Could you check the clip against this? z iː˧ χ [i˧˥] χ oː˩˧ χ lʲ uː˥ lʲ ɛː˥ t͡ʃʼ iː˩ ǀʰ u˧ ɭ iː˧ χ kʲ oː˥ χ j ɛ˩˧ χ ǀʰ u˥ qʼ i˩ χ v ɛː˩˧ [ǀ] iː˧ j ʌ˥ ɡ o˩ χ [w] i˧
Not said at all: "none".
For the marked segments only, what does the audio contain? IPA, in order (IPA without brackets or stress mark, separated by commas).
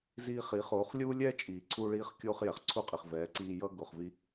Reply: i˩˧, ǀ, v